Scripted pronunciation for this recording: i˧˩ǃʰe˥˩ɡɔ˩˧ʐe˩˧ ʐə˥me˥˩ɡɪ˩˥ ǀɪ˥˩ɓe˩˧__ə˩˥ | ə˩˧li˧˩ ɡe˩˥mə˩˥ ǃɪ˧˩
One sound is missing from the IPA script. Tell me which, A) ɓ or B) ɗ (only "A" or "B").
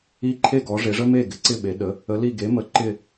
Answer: B